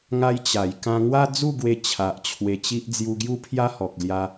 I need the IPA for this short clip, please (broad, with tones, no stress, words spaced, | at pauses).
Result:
ŋa˦j t͡ɕa˨˩j kã˧ŋwa˦d͡zu˥˧ ɡwe˧t͡ɕʰa˨ʔ t͡ɕʰwe˧t͡ɕi˦ʔ d͡zju˧ɡju˦ pʰja˦hɔ˨k̚ lja˧